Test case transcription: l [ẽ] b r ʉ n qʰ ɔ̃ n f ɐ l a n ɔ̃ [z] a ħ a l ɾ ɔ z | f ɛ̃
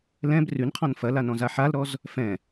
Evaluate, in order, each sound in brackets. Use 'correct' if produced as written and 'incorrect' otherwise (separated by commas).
incorrect, correct